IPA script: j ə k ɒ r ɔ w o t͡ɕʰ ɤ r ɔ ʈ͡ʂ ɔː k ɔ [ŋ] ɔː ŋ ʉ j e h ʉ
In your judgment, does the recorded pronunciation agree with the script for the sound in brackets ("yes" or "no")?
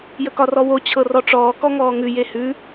yes